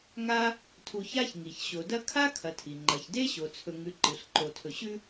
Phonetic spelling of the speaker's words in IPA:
ŋ a˦ | tʰ u˨ ç a˦ ç ŋ i˩ ç ɕ o˩ d ɐ˦ kʰ a˥ kʰ ɐ˨ tʰ i˩ ŋ͡ǃ ɐ˩ ç d e˥ ɕ o˩ t͡sʰ ɵ˨ ŋ ʉ˨ ǃ ɨ˩ ɬ ǃ o˩ tʰ ɵ˨ ɕ ʉ˥

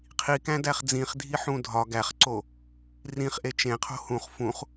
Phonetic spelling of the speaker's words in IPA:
qʰ i k æ̃ d æ χ d͡z ĩ χ dʱ i ħ ũ dʱ ɒ ɡ æ χ ǀ o | r ĩ χ ʔ e t͡ʃ ẽ qʰ o̤ h ũ χ f ũ χ

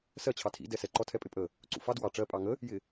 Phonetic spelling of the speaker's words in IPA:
s ɜ t͡ɕʰ ɑ tʰ ḭ d ɛ s ɛ ǃ ɔ tʰ ɛ pʼ ɪ pʼ ə | ǀ ṵ f ɑ d w ɑ ʈ͡ʂ ɜ pʼ ɑ ŋ ə | j ɪ

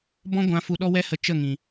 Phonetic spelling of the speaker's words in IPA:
b ɔ̃˧ ɡʷ ã˨ f u˧ ɗ ɔ˦ w ɛ˦ h ə˧ t͡ʃ ə˦˨ ŋ ĩ˨

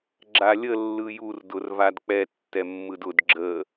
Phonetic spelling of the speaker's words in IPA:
ɡ͡ǁ a lʲ ə lː ɯ j u r d ʊ r v a d k͡p ɛ tː ɛ mː ɯ d ʊ d ɡ͡ǁ ə

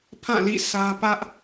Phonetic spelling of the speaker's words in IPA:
pʰ ã˦˨ l ḭ˦˨ s ä˦ p ä˦ ʔ

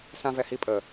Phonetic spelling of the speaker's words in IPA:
s ã v ɛ h i pʼ ə

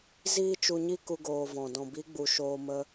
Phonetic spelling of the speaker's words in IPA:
z iː˦ t͡ʃ u˧ ɲ i˦ k u˦ ɡ oː˧ v ɔ̃˨ d ɔ̃˨ b i˨˦ ɡ͡b u˨ ʃ oː˧ m ə˧

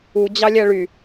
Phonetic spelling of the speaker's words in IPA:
u d͡ʑ ɑ lʲ æ ɭ y

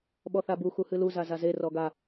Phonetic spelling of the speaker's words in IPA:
ɓ ɔ θ a b u x u h ɨ l u z a z a z e r ɔ ɡ a

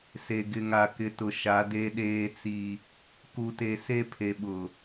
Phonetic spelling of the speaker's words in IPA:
s e˨ ɡ ɪ˨ ŋ a˨ k ɪ˨ t ʊ˨ ʃ a˨˦ d e˦ ɗ eː˦ t͡s i˦ | k u˨ t e˨ s e˦ pʰ e˨ ɓ ʊ˨

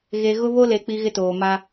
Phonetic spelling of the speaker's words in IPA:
ɣ e˨ ɣ ʊ˦ β o˦ l e˨ k͡p i˦ ɣ ɪ˦ t oː˨ m a˦

